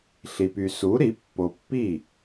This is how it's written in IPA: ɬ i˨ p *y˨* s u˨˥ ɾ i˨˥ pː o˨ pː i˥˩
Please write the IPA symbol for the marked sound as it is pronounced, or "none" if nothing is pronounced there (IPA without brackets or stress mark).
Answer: y˨